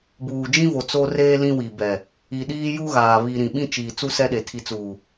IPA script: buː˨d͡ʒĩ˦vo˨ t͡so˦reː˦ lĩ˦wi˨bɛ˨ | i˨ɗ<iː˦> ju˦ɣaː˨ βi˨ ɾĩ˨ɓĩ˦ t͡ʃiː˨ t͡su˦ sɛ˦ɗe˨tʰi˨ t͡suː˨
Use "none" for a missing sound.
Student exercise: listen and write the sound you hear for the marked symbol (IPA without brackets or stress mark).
iː˦